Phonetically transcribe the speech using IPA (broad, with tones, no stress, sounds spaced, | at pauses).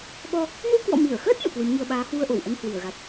ɓ ɔ˧ | n u˧ k w ɔ̰˧˨ m i˧˩ ə̯ x əː˦˥ t̚ n ṵ˧˨ k w ɨ˨˦ m ŋ i˧ ə̯ ɓ aː˨˦ h w u˧ ə̯ ʔ o˧˩ w ʔ ə˧ n h w i˧˩ ə̯ ɣ a˨˩ t̚